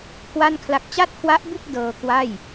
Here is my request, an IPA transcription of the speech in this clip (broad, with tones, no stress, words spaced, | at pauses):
kʰwa˥˩nkʰla˦˥k̚ t͡ɕa˥˩t̚kʰwa˦˥ʔbu˥˩k̚ dɤː˧kwa˥˩j